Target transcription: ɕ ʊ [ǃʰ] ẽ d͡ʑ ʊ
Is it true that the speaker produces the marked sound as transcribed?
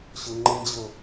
no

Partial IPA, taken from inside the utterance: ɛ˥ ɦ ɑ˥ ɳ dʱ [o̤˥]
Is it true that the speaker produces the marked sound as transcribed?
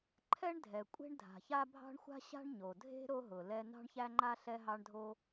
no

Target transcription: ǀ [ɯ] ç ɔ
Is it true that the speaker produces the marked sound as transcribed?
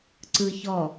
yes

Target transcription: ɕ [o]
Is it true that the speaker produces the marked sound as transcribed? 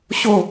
yes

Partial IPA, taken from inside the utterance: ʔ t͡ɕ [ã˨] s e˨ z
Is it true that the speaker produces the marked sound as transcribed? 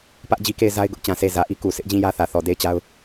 yes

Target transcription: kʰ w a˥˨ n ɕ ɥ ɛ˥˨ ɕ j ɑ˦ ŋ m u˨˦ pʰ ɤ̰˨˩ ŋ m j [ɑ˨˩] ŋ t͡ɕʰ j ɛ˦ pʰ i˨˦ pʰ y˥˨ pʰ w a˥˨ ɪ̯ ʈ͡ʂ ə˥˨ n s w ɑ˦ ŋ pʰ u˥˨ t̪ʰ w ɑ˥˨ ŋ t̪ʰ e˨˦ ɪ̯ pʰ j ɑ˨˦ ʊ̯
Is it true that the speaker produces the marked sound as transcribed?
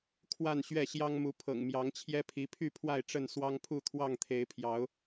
no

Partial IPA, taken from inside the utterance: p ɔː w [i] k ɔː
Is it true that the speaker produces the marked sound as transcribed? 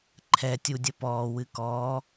no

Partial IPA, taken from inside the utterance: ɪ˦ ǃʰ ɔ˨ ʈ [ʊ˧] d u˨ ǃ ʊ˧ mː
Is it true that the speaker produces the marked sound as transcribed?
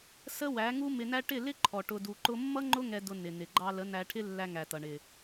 yes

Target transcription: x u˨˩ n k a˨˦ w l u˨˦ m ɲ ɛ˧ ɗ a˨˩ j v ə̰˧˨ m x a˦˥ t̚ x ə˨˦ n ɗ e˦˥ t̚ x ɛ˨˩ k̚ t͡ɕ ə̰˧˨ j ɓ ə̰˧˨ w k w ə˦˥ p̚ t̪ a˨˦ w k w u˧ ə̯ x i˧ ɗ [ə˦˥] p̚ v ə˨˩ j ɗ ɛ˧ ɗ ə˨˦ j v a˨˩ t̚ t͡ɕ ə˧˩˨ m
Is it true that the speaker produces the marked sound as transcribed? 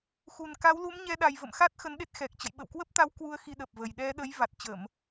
no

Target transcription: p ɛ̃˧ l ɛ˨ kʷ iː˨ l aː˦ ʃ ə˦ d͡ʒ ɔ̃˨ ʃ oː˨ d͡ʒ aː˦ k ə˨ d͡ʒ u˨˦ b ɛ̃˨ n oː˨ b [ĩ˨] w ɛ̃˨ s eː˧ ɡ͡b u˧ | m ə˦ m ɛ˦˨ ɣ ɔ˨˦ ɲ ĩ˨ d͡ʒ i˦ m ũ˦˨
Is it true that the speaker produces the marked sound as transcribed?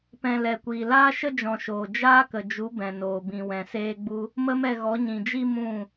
yes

